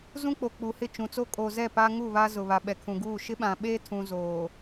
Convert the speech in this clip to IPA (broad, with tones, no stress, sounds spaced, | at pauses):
z ũ˦ k͡p o˨ k͡p u˨ h ɪ˦˨ t͡ʃ ũ˨ t͡s o˦ kʼ o˨ z ɛ˦˨ p a˦ ŋ u˦˨ β a˦ z ʊ˨ β a˨ ɓ ɛ˨ kʰ ũ˨ ɡ uː˦˨ ʃ ɪ˦ ɓ ã˨ ɓ e˦ tʰ ũ˨ z oː˨